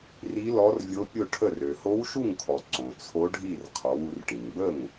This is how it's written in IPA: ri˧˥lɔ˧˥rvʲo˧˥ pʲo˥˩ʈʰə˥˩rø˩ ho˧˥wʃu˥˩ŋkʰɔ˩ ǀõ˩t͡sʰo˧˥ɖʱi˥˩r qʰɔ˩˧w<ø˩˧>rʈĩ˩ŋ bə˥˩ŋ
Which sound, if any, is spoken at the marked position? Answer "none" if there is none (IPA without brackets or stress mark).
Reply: u˩˧